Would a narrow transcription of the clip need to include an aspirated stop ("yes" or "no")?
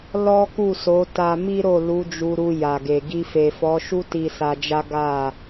no